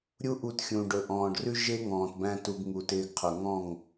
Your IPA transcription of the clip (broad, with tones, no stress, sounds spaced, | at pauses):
ɾʲ u˦ ʔ u˧ t xʲ ũ˨ ɖ ɵ˨ ʔ ɔ̃ː˨ ɖ r ʉ˦ ʒ e˦ ŋ ɔ̃ː˨ t b æ̃˧ t u˧ ɡ ŋ u˨ t ɪː˧ ɡ qʰ ɵ˨ ŋ ɔ̃˦˨ ŋ